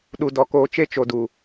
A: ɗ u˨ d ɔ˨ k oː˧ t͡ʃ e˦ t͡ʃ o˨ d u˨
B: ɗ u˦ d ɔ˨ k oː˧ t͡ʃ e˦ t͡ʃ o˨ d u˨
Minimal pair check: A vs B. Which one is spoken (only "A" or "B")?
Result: A